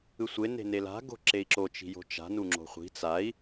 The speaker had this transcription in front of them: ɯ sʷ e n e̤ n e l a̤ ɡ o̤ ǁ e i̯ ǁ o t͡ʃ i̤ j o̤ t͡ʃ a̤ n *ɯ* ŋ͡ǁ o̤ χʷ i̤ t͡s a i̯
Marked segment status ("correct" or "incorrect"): incorrect